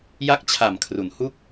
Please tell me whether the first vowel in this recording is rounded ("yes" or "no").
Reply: no